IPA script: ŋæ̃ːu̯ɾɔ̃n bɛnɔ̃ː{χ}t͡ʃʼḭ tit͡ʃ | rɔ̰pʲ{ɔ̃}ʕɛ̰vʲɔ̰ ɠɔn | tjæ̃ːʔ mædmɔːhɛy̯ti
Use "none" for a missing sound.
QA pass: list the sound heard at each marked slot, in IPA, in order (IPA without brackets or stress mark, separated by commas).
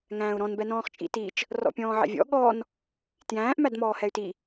χ, ɔ̃ː